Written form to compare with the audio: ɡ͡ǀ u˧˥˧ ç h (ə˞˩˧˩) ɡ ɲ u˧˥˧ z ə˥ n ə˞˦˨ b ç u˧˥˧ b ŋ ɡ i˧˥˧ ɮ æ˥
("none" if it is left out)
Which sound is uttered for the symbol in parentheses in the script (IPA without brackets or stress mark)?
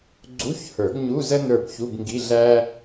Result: ə˞˨˩˦